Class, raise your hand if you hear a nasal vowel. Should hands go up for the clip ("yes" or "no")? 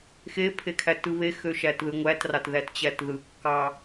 no